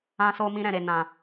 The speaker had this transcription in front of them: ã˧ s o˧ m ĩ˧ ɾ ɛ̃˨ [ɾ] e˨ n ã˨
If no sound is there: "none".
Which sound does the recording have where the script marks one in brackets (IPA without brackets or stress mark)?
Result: ɾ